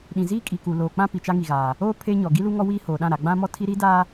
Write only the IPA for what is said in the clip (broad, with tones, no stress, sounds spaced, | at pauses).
ɗ ĩ˨ z iː˦ kʼ i˨ k u˨ l oː˨ k͡p ã˦ p i˨ t͡ʃ a˦ ŋ i˨ ɣ aː˨ | oː˦ pʰ e˦ ɲ ɔ˨ ɡ i˦ l u˦ ŋ ɔ˦ w iː˦ h oː˨ ɗ ã˦˨ ɾ a˨ ɡ͡b ã˦ m ɔ˦ tʰ i˦ ɾ i˦ d a˦